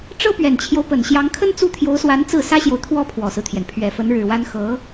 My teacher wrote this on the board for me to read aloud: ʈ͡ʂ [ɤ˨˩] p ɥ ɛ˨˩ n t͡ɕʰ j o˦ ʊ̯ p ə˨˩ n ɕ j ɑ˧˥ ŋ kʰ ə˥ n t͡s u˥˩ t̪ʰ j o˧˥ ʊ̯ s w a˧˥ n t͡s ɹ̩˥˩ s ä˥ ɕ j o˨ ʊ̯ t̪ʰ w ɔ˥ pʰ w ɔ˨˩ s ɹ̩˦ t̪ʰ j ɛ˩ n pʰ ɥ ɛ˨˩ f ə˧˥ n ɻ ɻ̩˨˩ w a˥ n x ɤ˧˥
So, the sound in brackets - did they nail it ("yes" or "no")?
no